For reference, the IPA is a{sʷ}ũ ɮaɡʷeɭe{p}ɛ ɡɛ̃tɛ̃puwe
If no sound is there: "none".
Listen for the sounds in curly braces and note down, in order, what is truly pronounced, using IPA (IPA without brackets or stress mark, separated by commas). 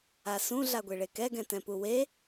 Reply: s, k